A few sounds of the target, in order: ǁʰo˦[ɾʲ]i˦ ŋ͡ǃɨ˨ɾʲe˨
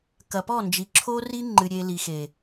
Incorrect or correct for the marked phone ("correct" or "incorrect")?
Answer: incorrect